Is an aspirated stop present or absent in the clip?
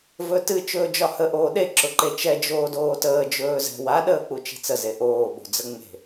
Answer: absent